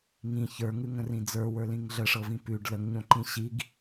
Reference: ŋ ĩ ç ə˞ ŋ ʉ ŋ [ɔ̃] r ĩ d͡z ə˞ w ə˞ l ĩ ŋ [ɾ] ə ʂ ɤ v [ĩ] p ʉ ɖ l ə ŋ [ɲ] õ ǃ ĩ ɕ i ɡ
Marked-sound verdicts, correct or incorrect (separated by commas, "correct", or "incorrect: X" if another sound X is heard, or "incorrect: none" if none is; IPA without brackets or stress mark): incorrect: ə̃, incorrect: ɮ, correct, correct